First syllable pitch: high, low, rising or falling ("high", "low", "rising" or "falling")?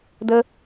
low